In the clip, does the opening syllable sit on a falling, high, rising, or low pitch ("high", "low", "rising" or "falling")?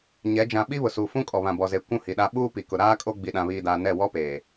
rising